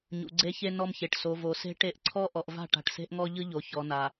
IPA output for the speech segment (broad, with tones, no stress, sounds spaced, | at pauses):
ɲ ṵ˨ ɡ͡ǀ e˦ ç e˦ n ɔ˦ m ç e˨ ʈ s o˨ v o˨ s e̤˦ ʈ e˦ ʔ ǀʰ ɔ˦ ʔ ɔ˨ ʔ v a̤˦˨ ʈ a̤˨ ʈ s e̤˦ ʔ ŋ ɔ˦ ʎ ɯ˦ ʎ o˨ ç ɔ˨ n a˨